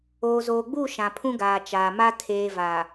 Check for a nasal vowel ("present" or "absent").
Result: present